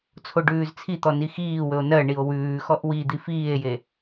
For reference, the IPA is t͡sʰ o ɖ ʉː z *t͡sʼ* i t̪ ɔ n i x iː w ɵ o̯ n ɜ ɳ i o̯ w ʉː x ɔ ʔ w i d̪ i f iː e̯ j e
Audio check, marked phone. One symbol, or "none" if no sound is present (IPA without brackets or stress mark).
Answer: t͡sʰ